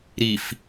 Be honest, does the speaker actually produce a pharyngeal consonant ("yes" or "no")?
no